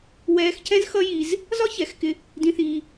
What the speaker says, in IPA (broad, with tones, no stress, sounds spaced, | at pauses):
w ɛː˧ x c ɛ̃˦ z x ʌ˦ j i˧ z | z ɒ˦ ç ɛ˨˦ x k ɪ˧ | d ĩ˦ θ iː˦